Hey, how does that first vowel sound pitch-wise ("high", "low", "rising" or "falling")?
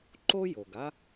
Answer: high